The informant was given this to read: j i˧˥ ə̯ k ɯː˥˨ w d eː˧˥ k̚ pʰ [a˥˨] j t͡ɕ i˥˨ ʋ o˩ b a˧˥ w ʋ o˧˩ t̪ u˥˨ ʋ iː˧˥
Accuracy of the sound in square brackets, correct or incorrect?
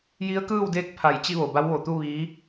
incorrect